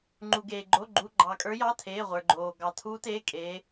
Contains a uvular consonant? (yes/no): yes